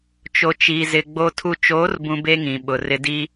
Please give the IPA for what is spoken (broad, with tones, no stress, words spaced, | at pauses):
t͡ʃo˨t͡ʃi˨ zɪ˨ ɡ͡bo˨tʰu˨t͡ʃoː˨˦rbũ˨ be˦ŋĩ˨ɓʊ˨ rɪ˨di˦